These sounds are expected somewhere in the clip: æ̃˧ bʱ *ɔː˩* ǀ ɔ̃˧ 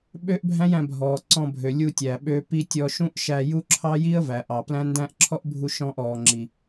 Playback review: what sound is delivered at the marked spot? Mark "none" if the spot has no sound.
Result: ɔː˩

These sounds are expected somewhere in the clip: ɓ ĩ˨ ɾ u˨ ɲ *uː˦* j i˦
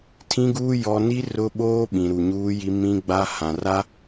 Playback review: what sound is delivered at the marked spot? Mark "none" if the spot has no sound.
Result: uː˦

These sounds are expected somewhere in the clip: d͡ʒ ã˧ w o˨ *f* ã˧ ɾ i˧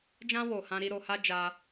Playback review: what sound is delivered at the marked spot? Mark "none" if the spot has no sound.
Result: h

